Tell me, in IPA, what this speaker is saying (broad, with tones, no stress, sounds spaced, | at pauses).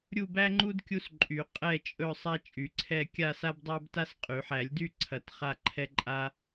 ɾʲ u˥˧ b æ˥ ŋ͡ǃ u˥ d kʲ u˥ s ǃʼ y˨˩˦ qʼ ɛ˥˧ t͡ʃʼ ɵ˥˧ sˤ a˥ t͡ʃʼ y˨˩˦ ǀʰ ɛ˥˧ kʲ a˥˧ s a˥ b dˤ æ˥ b t a˥ s qʼ y˨˩˦ ħ æ˨˩˦ lʲ d y˥˧ ǀʰ ɐ˨˩˦ t χ a˥˧ ǃʰ ɛ˥ ǃʼ a˥